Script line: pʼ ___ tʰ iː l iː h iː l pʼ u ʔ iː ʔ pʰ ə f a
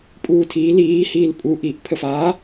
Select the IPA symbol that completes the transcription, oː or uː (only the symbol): uː